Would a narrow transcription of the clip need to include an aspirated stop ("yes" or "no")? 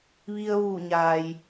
no